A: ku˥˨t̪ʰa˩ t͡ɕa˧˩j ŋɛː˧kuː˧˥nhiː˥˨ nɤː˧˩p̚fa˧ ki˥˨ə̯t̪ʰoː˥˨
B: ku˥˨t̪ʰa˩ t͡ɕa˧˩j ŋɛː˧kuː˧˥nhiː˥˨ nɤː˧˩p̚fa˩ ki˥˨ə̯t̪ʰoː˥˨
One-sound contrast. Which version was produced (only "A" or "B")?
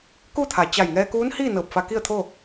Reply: A